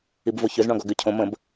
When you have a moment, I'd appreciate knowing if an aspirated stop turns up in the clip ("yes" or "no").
yes